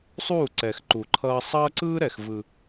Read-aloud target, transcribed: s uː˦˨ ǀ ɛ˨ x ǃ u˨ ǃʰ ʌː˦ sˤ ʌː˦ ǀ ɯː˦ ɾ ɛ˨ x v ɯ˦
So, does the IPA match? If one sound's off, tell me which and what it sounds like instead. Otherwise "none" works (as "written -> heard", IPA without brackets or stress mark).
s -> sˤ